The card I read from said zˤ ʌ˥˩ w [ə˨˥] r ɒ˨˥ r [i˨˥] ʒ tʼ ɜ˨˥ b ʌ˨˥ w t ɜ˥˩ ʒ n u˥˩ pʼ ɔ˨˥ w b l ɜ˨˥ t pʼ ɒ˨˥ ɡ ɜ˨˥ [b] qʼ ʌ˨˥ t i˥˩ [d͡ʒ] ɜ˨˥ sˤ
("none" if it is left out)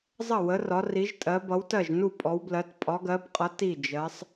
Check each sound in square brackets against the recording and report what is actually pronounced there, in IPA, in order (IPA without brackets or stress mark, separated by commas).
ə˨˥, i˨˥, b, d͡ʒ